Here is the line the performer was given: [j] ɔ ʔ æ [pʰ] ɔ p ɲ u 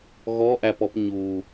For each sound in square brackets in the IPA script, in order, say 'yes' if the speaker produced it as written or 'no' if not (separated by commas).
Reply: no, no